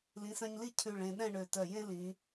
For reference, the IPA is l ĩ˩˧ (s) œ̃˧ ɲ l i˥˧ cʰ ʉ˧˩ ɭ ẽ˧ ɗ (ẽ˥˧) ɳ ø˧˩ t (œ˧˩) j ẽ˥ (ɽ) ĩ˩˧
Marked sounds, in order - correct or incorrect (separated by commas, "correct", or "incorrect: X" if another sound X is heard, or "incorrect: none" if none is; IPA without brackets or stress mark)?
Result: correct, incorrect: ɛ̃˥˧, correct, incorrect: l